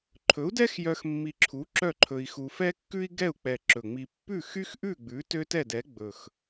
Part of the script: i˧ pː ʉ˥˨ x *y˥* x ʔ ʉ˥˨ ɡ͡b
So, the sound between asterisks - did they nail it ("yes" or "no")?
yes